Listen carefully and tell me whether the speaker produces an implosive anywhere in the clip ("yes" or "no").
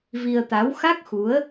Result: no